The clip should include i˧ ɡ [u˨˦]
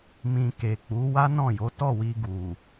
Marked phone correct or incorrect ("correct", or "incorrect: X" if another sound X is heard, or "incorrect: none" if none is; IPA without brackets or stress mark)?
incorrect: u˨